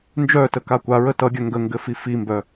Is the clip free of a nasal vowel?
yes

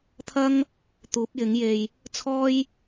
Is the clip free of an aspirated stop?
no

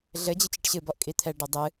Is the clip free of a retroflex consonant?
no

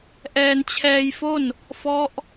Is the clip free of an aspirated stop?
no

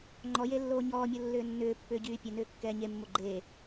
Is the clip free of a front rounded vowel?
no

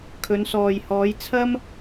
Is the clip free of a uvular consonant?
yes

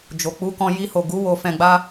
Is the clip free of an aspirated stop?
yes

